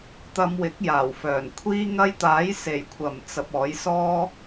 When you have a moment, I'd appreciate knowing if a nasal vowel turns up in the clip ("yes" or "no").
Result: no